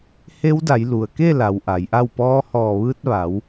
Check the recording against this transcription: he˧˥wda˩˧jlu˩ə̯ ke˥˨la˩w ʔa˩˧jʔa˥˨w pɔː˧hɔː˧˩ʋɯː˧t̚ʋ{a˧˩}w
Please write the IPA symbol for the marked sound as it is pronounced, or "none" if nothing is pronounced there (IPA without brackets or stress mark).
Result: a˩˧